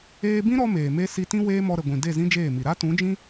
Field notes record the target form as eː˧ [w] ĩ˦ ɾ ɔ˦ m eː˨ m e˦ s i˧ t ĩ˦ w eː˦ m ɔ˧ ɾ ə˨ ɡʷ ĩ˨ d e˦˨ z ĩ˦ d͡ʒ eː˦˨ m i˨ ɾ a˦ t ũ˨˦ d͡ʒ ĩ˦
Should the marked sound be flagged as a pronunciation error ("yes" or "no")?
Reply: yes